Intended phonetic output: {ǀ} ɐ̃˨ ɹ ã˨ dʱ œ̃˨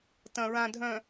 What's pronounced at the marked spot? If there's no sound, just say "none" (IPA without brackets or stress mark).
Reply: t